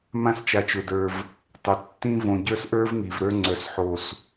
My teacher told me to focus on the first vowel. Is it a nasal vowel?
yes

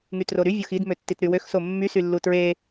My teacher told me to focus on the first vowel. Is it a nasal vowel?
no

